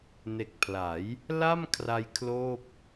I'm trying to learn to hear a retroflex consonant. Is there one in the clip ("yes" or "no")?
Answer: no